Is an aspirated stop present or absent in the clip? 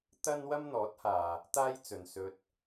absent